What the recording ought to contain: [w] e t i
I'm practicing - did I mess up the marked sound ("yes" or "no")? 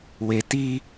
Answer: no